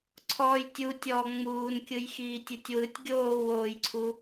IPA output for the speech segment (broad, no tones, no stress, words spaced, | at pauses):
ǀʰɔːjtʲu tʲɔ ŋ͡muːnkʲɯjxiː tʲɯtʲwɯtʲ ɡʲoːwoːjǀʰu